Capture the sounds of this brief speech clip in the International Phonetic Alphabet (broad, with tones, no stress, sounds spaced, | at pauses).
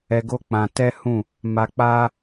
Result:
ɛ˧ ɡ o˦ k͡p ã˧ t ɛ˦ h ũ˦˨ | m a˧ k͡p a˦